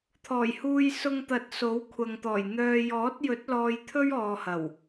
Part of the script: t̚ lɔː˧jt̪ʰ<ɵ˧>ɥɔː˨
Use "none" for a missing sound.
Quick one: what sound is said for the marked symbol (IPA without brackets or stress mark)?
ɵ˥